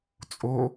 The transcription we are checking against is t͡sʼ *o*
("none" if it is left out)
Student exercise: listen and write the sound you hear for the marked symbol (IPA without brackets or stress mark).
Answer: o